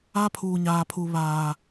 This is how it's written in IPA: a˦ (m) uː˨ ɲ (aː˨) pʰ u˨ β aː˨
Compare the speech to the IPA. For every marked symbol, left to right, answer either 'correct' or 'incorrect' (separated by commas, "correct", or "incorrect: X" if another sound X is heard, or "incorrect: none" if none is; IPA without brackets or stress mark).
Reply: incorrect: pʰ, correct